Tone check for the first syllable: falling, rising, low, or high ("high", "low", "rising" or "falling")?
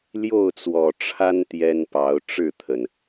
falling